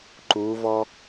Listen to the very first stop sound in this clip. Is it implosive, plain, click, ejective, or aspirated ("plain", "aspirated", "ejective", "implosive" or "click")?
click